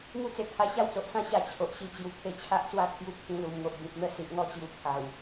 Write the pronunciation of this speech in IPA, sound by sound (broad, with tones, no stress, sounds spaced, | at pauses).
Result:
ŋ u˦ t͡s e˧ kʰ a˧ ɕ a˦ w t͡s o˨ ʔ s ã˦ ɕ a˧ t͡ɕʰ o˨ ʔ ɕ i˧ t͡ɕ j u˨˩ kʰ e˧ t͡ɕʰ a˦ ʔ t͡s w a˥˧ kʰ j u˧ kʰ ĩ˧ l u˨˩ m ŋ o˨ ʔ b ĩ˨ p̚ n̪ ə˥˧ s i˨ ʔ ŋ ɔ˥˧ t͡ɕ j u˧ kʰ a˨˩ w